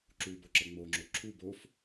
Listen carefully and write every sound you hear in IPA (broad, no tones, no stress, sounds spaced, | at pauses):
ǁ u b o ǁ ə ŋ͡m o ŋ͡ǁ o ǁʰ u b o f